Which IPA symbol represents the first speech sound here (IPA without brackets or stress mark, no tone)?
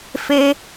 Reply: f